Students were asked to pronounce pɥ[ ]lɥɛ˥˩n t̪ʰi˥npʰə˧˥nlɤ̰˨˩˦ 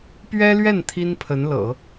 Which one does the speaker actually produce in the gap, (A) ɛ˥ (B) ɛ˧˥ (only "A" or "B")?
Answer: A